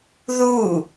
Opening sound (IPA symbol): ð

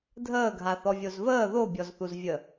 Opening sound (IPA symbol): dʱ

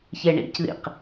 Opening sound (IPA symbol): ç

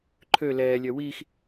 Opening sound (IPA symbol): ǃʰ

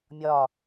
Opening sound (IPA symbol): mʲ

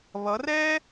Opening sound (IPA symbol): β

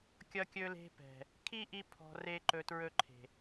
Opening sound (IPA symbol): kʲ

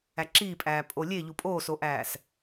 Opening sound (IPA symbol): æ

